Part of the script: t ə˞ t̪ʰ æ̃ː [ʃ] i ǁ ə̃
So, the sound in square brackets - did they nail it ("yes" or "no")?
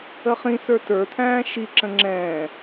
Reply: yes